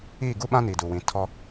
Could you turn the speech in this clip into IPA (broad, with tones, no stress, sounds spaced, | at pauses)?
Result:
iː˦˨ ɡ u˦ ɓ ã˦ n iː˨ d u˨ w ĩ˨˦ tʰ ɔ˦